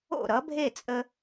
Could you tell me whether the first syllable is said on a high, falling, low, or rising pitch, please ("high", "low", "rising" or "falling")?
falling